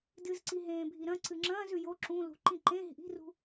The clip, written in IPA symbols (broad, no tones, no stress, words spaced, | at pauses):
dɨzǀiɦẽːbʱi ɾɐ̃ ǀɨŋ͡ǁɐ̃ːz ʉjo ǁũ lṳǃĩ ǃẽ ɦi̤ʔi̤rṳ